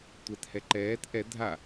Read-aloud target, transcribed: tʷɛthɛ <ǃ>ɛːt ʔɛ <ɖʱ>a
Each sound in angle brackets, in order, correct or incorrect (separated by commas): correct, incorrect